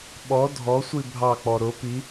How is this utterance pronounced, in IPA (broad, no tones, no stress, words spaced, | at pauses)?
ɓɔ dʱɔsʷi bʱɑk͡pɔ ɾʊ pi